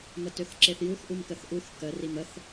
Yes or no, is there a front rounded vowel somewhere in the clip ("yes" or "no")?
yes